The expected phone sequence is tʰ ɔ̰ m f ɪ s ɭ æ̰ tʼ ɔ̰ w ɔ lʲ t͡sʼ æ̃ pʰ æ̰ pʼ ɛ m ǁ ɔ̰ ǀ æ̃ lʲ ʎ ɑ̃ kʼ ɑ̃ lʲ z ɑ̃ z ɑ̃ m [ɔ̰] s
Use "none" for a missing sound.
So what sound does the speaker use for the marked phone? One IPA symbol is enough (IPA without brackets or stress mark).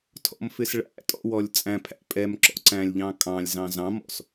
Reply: ɔ̰